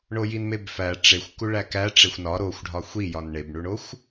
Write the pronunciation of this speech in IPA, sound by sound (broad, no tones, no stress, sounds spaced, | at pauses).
ɳ o j i n m e b f æ ʈ͡ʂ e xʷ k u ɭ æ k æ ʈ͡ʂ e xʷ n ɒ ɾ o xʷ ɖʱ ɒ xʷ i j ɒ n ɳ e b ɳ u ɳ o xʷ